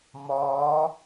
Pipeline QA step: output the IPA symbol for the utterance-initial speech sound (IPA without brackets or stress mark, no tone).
m